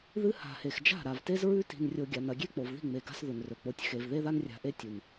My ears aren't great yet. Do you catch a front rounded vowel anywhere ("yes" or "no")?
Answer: no